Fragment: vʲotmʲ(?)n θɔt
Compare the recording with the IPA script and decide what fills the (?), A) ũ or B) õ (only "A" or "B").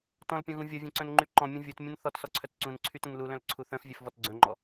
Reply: B